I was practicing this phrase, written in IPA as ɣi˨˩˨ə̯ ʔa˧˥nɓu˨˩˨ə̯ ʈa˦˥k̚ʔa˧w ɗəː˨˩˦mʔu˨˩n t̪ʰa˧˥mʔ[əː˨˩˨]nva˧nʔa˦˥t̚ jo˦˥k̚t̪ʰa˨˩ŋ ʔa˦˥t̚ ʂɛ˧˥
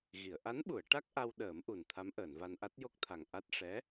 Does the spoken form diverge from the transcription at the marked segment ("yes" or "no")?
no